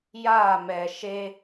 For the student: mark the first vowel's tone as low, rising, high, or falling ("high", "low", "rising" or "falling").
falling